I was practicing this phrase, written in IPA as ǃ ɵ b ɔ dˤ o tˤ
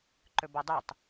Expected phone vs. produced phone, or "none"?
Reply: none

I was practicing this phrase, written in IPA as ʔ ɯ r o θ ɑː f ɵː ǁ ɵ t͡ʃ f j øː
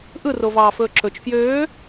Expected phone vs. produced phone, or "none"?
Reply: θ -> v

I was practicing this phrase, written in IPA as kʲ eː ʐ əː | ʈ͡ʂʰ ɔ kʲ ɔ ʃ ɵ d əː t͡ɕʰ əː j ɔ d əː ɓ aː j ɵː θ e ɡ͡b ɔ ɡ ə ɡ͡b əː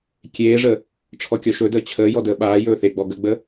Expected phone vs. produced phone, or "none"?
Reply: none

